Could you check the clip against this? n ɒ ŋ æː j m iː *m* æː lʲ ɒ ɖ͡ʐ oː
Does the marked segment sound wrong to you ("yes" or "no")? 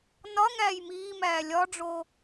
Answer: no